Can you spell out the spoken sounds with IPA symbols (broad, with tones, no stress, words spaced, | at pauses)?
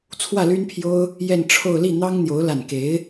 t͡sʰwä˥˩ly˥npʰjo˥ʊ̯ | jɛ˥˧nʈ͡ʂʰo˥˧ʊ̯ li˥˩n̪ɑ˥ŋn̪jo˧˥ʊ̯ la˥˩n ke˧˥ɪ̯